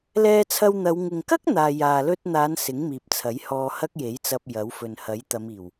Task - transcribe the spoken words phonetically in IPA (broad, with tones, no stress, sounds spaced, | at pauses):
l ɛː˧ t͡sʰ ɐ˧ w n̪ ɐ˨˧ w ŋ ɪ˨ ŋ k ɐ˥ k̚ n̪ aː˨ j aː˨ l ɵ˧ t̚ n̪ aː˨˧ n s ɪ˨˥ ŋ m iː˨ p̚ t͡sʰ ɐ˨˥ j h ɔː˧ h ɐ˥ k̚ j e˨˥ j t͡s ɐ˧ p̚ j ɐ˨˥ w f ɵ˨ n h ɐ˨˥ j t̪ ɐ˨˧ m iː˨˩ w